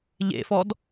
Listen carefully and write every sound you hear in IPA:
ʎ ḛ f ɔ d

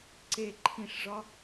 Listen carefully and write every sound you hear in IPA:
ǀ e ǃʰ ĩ ʂ ʐ ɒ

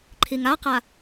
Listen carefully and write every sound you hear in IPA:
ǃʰ i ŋ a q a

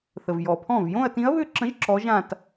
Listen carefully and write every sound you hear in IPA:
θ ə˨ v j ɔ˨ pʰ ɔ̃˥˩ v j õ˥˧ ɐ̯ t ĩ˧˥ ɐ̯ β ʏ˥˧ ǁ ə̃˧˥ ʒ ǁ ɔ˧˥ ʒ ã˥˧ t

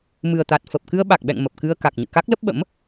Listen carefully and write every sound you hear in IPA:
m ɨ˨˩ ə̯ t̪ a˨˩ t̚ f ə˨˩ p̚ k ɨ˧ ə̯ ɓ a˨˩ k̚ ɓ ɛ̰˧˨ ŋ m ə˨˩ p̚ k ɨ˧ ə̯ k a˨˩ k̚ ɲ ɨ̰˧˨ k a˦˥ k̚ l ə˦˥ p̚ ɓ ə̰˧˥ m

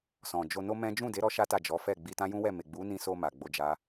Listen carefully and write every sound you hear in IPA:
s ɔ̃˨ d͡ʒ o˧ n o˦ m ɛ̃˦ d͡ʒ ũ˦˨ d e˨˦ ɾ ɔ˦ ʃ a˦ t a˦˨ d͡ʒ ɔ˨˦ f ɛ˦˨ ɡ͡b i˧ t ã˦ j ũ˦ w ɛ˦˨ m e˨ ɡ͡b u˨˦ n ĩ˧ s o˧ m a˨ ɡ͡b o˧ d͡ʒ a˦

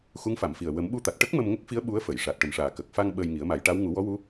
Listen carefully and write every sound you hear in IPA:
x u˧˥ ŋ f a˨˩˨ m f i˨˩ ə̯ w ə˨˩˦ m ɓ u˧ t̪ a˨˩ t̚ ʈ ə˦˥ k̚ m ə˧ m ŋ ə˦˥ k̚ f i˧˥ ə̯ ɓ u˧˥ ə̯ f ə˨˩˨ j ʂ a˨˩ t̚ ʈ ə˨˩ m ʂ aː˨˩ k ə˨˩ k̚ f a˧ ŋ ɓ əː˧ j ŋ i˨˩˦ ə̯ m a˨˩˦ j ʈ a˧˥ w ŋ u˨˩˦ w ɔ˧˥ w u˧˥

